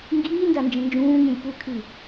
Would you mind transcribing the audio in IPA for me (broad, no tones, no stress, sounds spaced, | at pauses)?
ŋ ɡ iː n d a n d͡ʒ ə̃ n d͡ʒ ũː ŋ ĩ lʲ p u kʰ i